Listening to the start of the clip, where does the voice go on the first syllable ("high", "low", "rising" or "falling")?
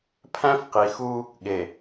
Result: high